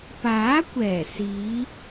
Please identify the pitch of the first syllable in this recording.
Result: rising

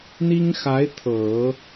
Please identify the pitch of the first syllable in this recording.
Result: high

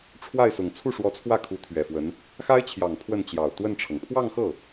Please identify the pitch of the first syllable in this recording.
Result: falling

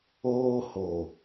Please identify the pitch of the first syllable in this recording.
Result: high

